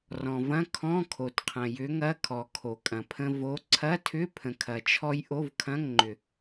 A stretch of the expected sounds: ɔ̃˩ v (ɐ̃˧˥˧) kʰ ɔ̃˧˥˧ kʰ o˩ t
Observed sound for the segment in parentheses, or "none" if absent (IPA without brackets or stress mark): ɐ̃˧˥˧